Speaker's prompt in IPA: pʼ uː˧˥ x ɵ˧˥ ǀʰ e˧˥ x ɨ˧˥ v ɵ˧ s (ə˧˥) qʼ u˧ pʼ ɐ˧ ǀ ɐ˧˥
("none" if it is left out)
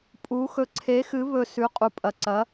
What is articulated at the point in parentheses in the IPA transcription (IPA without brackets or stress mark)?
ʉ˧˥